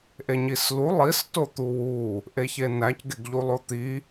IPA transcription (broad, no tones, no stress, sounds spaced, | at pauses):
ʔ e ɲ i s l u lˠ i s t o t̪ u w u | ʔ e ç e n æ c ɡ e ɡ ʎ u lˠ o t̪ i